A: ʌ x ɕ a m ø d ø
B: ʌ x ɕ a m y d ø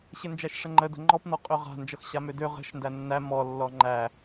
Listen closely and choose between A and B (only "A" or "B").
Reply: A